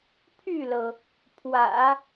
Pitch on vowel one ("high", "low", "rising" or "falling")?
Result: falling